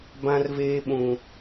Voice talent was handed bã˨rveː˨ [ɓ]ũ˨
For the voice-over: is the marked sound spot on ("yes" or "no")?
yes